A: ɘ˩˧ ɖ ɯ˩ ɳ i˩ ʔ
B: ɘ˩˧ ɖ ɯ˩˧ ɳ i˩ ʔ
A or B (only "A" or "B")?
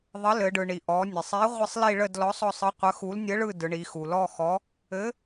A